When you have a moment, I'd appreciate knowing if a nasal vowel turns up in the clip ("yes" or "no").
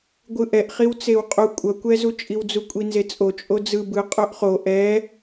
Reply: no